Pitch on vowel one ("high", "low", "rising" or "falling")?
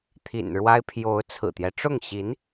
low